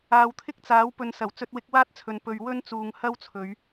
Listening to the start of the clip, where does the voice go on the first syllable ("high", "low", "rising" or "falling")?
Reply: low